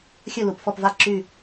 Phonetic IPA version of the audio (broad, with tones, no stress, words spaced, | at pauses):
xʲɵ˦˨lu˨˩pfɔ˦˨pva˦˨ ǁy˦˨